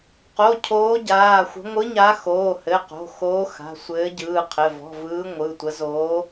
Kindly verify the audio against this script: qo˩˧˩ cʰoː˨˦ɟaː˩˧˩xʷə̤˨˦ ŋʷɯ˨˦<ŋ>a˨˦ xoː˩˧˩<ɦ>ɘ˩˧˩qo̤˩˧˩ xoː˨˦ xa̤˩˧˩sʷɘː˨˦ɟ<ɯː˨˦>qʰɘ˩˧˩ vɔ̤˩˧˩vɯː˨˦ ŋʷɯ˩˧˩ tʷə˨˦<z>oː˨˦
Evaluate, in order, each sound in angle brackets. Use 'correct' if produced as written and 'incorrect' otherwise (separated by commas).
incorrect, incorrect, incorrect, correct